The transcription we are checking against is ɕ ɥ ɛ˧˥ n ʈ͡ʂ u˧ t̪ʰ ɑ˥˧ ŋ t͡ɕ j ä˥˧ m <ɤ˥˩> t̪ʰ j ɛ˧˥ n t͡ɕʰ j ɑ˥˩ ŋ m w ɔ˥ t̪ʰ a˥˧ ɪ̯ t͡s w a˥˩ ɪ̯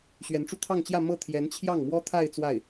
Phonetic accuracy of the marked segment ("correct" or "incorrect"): correct